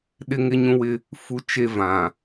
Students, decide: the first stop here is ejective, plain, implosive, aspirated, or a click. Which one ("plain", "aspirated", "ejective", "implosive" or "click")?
implosive